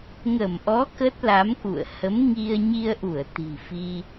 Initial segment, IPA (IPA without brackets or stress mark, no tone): ŋ